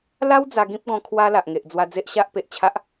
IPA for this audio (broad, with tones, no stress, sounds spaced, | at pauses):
l a˦ w d͡z a˧ ɡ ĩ˦ p̚ ɡ ɔ̃˧ kʰ w a˧ l a˨ ʔ ŋ e˨ ʔ d͡z w a˧ d͡z e˦ ʔ ɕ a˦ ʔ p e˨ ʔ t͡ɕʰ a˦ ʔ